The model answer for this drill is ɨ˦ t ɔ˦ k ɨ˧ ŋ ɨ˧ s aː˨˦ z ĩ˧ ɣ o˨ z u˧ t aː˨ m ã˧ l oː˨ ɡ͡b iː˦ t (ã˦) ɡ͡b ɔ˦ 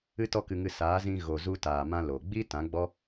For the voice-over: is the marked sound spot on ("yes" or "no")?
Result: no